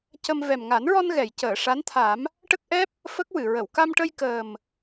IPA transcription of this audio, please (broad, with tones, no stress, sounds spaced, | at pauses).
c ə˧ m v ɛ˨˩ m ŋ a˨˩˦ n ɹ ɔ˧ n ɣ ɛ˨˩˨ j c əː˨˩˨ ʂ a˧˥ n t̪ʰ a˨˩˦ m | ʈ ə˦˥ k̚ ʔ ɛ˦˥ p̚ | f ə˦˥ k̚ w ɨ˨˩˨ ɹ ə˨˩˨ w k a˧ m ʈ ə˧ j k əː˨˩ m